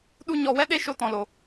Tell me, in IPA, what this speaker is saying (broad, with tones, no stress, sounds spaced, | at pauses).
ɗ u˦ ɲ ɔ˧ w ɛ˦ ɗ e˦ ʃ o˦ t ɔ̃˧ l o˧